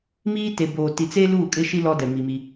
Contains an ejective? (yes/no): yes